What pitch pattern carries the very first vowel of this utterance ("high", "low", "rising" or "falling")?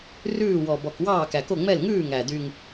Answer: falling